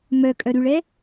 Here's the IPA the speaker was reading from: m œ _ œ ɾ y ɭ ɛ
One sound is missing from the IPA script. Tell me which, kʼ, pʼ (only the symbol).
kʼ